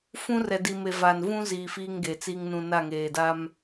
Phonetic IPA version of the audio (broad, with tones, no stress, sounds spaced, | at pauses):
f ũ˦ r ɛ˨ d i˨ m e˨ v aː˨ n v ũ˦ z iː˨ f iː˦ ŋ ɡ e˨ t͡s i˦ ŋ n ũ˨ n a˦˨ ŋ eː˨ d a˦ m